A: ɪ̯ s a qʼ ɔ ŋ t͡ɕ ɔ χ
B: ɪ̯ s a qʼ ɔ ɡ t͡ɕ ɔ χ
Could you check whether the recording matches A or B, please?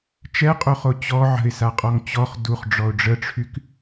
A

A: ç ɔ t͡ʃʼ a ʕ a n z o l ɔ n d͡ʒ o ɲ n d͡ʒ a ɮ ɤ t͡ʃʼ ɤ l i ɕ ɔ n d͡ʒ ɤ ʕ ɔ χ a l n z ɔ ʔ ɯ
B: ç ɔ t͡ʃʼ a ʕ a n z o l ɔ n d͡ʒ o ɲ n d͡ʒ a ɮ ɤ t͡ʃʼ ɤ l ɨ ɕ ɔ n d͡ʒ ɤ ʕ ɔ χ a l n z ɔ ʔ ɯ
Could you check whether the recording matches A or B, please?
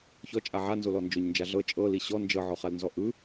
A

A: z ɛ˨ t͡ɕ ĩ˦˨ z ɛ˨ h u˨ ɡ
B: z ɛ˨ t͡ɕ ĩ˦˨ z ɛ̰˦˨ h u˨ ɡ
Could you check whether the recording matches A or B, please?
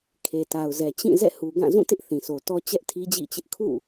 B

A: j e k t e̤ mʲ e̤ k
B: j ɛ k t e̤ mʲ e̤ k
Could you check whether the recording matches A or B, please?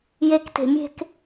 A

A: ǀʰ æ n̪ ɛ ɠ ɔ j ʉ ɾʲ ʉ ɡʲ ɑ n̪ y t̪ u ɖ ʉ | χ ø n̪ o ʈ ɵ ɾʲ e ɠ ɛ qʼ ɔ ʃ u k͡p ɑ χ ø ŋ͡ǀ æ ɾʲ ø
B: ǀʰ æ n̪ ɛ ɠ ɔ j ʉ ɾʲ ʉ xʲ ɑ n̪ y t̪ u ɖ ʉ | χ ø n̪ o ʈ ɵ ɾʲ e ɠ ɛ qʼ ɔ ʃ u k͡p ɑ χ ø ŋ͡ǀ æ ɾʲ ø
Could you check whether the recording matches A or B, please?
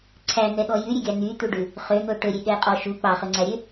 A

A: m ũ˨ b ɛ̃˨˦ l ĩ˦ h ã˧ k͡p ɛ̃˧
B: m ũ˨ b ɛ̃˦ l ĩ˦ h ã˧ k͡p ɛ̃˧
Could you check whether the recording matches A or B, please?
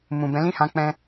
A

